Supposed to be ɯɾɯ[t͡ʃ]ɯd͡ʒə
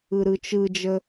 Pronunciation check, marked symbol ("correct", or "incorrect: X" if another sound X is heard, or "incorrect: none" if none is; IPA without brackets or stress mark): correct